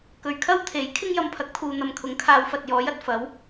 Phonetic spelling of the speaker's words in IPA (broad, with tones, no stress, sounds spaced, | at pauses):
k ɵ˨˧ ɥ kʰ ɐ˥ w t̪ʰ e˨˥ j kʰ ɪ˥ ŋ j ɐ˧ m pʰ ɐ˨˥ k̚ t̪ʰ uː˨ n̪ ɐ˨ m kʰ ʊ˨˥ ŋ kʰ aː˨˧ w f ɐ˨ t̚ j ɔː˨˥ j ɐ˨ t̚ f ɐ˨˥ w